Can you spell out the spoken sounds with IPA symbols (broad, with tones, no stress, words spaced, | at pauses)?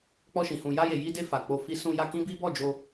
k͡pɔ˧ʃĩ˨ hũ˧ ja˧je˨ji˧de˧ fa˨ k͡po˧fi˦ sũ˧ja˧ kĩ˦bi˦ bɔ˦˨d͡ʒo˧